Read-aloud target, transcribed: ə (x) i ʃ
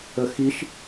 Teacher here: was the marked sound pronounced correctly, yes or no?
yes